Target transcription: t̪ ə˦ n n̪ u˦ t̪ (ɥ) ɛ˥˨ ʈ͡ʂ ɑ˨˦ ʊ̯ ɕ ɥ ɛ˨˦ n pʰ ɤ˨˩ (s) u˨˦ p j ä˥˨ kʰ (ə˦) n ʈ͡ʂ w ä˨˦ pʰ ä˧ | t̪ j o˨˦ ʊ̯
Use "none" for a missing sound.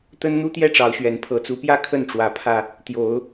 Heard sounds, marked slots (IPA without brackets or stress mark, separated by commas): j, t͡s, ə˥˨